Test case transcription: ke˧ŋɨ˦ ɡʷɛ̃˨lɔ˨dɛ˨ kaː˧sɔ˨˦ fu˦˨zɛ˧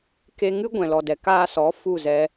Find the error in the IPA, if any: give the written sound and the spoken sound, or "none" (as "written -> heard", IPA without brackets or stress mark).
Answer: none